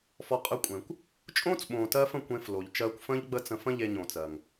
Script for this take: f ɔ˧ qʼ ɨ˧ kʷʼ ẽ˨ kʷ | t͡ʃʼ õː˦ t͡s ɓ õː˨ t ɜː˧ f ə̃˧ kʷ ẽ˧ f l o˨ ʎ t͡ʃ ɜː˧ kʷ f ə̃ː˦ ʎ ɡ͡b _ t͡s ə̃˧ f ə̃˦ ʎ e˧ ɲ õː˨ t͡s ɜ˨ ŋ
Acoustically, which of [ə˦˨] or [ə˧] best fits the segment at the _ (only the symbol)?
ə˦˨